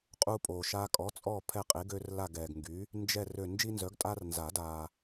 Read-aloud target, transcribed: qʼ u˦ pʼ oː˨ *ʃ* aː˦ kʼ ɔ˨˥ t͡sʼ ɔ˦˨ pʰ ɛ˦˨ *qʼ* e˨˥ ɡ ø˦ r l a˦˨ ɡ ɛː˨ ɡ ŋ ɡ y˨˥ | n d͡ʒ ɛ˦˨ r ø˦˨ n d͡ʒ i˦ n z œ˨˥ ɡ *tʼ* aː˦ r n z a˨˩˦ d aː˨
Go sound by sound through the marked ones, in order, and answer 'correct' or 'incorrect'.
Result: correct, correct, correct

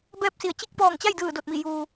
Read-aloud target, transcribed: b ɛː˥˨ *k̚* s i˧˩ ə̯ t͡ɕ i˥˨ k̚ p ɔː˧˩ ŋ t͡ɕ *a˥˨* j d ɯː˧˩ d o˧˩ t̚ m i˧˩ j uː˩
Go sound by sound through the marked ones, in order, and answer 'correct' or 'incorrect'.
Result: incorrect: p̚, correct

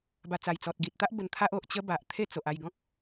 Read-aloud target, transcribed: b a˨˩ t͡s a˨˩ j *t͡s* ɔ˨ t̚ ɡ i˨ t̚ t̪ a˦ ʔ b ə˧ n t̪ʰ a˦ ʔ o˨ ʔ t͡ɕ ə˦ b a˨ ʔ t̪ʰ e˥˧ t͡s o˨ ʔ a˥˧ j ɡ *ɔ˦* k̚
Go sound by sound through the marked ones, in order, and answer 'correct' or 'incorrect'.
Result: correct, incorrect: ɔ̃˦

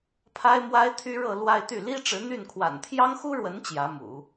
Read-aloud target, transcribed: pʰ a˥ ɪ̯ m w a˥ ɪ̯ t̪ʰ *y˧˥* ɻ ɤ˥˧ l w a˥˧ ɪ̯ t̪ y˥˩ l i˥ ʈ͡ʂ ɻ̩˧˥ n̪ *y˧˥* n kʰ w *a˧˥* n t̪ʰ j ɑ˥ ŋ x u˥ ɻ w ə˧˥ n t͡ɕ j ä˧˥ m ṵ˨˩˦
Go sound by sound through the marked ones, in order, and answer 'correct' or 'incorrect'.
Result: incorrect: y˥, incorrect: y˥˩, incorrect: a̰˨˩

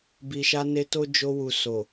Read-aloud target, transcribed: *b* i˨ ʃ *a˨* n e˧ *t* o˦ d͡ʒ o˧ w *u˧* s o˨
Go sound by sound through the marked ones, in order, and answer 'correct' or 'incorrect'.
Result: correct, incorrect: a˧, correct, incorrect: u˨

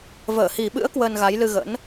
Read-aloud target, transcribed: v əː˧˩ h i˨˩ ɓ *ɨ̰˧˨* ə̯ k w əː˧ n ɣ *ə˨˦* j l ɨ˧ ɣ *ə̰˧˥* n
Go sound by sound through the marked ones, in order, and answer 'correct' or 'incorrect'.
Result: incorrect: ɨ̰˧˥, incorrect: a˨˦, correct

